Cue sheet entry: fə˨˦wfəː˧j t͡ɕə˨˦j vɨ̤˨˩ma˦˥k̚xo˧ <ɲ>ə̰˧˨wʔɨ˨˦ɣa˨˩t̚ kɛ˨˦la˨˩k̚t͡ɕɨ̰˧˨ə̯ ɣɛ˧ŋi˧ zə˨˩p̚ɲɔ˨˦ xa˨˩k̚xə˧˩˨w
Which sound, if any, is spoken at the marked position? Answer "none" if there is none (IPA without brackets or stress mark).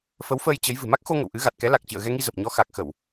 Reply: ŋ